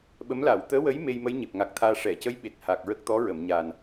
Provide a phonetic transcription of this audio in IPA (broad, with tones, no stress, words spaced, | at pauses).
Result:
ɓə˧˥m la˨˩˨wt̪əː˧˥wə˧˥j me˧jmə˧˥j ɲe˨˩p̚ŋa˨˩k̚t̪ʰaː˧ ʂɛ˨˩˨ cə˧˥j ɓe˨˩t̚ha˨˩k̚ɹə˦˥k̚ t̪ɔ˧˥ɹə˨˩˨mɲa˨˩n